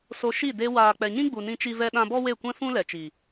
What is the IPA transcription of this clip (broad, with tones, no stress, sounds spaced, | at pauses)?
s o˧ ʃ i˦˨ d e˧ w aː˨ k͡p ɛ˨ ɲ ĩ˦ ɡ͡b u˨ n ĩ˦ t͡ʃ i˦ v ɛ˦ ɗ ã˦ b ɔ˦ w e˦˨ kʷ ɛ̃˦ f ũ˦ l ɛ˨ t͡ʃ i˨